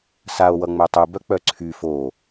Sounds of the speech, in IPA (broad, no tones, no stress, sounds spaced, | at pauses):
s a o̯ w ʌ ŋ͡m œ tˤ u b œ k͡p œ ǀʰ y f o